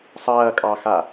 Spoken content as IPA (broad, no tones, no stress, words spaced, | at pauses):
sˤɐːkʼɑxa